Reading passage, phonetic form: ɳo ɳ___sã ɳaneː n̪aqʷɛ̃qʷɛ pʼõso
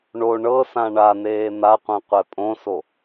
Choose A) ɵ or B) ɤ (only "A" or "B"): B